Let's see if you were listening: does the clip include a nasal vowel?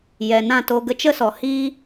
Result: yes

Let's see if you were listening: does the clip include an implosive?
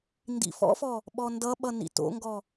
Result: yes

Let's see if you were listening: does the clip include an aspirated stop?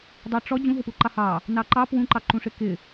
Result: no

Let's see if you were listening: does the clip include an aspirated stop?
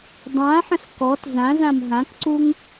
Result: no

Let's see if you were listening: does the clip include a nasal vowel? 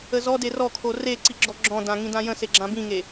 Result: yes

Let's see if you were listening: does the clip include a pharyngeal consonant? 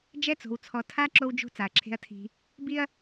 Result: no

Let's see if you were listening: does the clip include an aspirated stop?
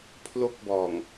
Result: yes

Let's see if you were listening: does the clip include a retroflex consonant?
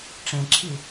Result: yes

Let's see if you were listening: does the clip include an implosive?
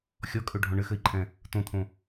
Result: no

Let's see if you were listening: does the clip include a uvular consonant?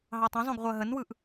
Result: yes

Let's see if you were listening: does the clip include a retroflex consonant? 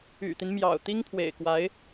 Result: no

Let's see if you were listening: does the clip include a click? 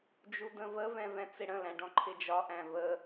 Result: yes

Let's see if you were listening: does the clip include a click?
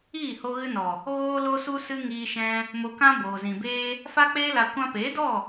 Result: no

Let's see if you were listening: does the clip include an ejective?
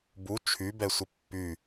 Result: no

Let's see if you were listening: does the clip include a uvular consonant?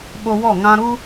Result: no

